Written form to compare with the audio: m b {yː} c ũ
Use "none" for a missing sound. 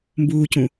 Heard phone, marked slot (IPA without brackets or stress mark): uː